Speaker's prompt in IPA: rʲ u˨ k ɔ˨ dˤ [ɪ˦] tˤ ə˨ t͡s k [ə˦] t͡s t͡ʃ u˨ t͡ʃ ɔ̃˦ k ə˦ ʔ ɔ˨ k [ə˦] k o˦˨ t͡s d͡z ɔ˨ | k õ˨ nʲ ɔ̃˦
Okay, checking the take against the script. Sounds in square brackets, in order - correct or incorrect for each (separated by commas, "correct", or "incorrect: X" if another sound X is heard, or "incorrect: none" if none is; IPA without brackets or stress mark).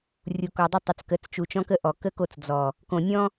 incorrect: ə˦, incorrect: ə˨˦, correct